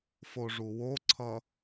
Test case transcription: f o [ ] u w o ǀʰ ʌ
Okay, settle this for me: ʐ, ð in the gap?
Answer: ʐ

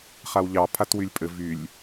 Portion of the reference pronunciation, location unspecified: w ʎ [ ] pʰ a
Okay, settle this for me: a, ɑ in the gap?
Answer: ɑ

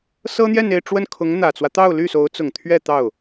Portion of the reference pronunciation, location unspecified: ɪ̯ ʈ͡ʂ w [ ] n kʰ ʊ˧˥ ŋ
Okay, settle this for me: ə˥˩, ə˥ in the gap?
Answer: ə˥˩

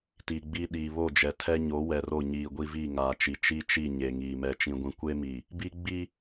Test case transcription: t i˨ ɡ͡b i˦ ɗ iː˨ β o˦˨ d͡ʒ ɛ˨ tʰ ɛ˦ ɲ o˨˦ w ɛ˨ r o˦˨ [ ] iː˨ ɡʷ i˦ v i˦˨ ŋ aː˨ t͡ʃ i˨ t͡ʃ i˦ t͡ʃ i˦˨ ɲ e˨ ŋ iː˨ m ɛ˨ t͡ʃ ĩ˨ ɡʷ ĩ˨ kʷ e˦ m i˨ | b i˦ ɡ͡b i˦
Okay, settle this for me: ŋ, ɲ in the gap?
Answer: ɲ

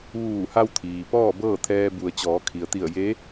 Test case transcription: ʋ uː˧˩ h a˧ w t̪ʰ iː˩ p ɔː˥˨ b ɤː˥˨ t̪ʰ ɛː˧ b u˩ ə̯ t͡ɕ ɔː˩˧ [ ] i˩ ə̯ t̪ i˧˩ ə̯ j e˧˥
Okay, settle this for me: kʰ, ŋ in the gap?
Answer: kʰ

